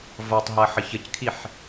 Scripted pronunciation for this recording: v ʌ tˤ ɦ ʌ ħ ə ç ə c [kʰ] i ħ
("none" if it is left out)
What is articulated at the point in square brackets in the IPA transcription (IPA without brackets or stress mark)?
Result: kʰ